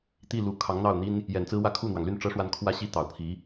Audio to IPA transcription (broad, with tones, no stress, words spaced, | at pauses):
t̪i˥˩lu˨˩ kʰɑ˧˥ŋn̪ɑ˥˩ʊ̯n̪i˥n | jɛ˨˩nt͡sɹ̩˥wä˥˧ kʰu˥˩n̪wɑ˩ŋly˥˩n ʈ͡ʂɤ˥ʂwa˥˩n kʰwä˥ɕi˥˩ t̪ɑ˨˩ʊ̯pʰi˧˥